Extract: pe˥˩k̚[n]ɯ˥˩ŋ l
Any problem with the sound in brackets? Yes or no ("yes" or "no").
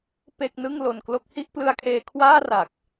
no